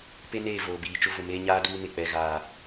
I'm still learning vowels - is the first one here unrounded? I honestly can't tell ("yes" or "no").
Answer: yes